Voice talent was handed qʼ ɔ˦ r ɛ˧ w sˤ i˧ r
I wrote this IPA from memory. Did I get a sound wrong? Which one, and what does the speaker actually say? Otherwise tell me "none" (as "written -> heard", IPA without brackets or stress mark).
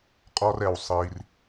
none